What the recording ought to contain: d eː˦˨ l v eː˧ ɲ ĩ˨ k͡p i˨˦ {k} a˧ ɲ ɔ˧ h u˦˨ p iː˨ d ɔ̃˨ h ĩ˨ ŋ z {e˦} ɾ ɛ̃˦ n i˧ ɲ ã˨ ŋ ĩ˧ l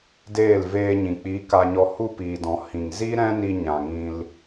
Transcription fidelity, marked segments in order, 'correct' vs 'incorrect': correct, incorrect

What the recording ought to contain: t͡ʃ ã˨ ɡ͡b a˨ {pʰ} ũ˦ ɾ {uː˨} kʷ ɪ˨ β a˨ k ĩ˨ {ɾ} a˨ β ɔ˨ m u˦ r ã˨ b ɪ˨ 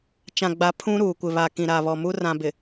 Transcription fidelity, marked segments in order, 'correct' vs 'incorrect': correct, correct, correct

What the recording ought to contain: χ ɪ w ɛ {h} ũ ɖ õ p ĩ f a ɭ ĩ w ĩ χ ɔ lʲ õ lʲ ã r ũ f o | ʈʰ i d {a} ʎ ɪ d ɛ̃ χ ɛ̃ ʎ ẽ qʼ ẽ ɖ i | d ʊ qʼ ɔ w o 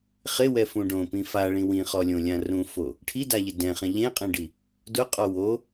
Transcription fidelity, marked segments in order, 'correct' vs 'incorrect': incorrect, correct

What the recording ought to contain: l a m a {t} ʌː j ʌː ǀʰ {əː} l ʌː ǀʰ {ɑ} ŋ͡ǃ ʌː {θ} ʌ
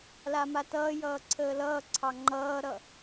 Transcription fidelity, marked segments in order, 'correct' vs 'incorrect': correct, correct, correct, incorrect

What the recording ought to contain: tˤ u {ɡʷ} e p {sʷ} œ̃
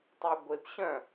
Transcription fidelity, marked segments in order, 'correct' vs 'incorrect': correct, incorrect

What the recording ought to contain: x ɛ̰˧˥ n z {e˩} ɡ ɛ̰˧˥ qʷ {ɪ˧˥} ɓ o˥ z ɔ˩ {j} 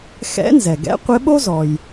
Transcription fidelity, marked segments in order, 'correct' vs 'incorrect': incorrect, correct, correct

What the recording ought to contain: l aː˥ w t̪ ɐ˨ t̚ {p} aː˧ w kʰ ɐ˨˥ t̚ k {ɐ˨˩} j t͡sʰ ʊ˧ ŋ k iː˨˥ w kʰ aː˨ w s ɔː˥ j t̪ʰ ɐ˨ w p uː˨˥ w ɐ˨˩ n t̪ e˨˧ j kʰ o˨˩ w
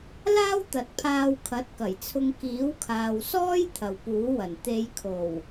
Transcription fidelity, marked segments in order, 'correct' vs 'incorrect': incorrect, correct

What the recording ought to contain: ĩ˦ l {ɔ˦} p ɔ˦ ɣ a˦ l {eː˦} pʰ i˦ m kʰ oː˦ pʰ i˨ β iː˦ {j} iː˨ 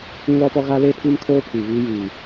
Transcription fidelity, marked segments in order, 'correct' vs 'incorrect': correct, incorrect, correct

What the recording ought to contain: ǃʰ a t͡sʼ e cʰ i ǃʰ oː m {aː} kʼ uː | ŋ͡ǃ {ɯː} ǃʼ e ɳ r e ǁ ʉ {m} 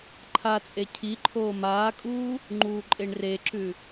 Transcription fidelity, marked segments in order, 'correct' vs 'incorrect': correct, incorrect, incorrect

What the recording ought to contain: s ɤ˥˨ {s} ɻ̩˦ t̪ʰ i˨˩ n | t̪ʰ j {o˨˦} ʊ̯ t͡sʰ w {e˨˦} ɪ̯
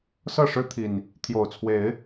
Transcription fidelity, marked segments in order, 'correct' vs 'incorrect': incorrect, incorrect, correct

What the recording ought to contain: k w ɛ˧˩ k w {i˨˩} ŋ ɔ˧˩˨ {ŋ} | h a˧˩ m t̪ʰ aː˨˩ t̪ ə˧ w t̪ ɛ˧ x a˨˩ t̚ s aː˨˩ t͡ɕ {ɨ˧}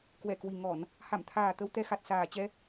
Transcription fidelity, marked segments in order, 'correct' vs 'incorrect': correct, incorrect, incorrect

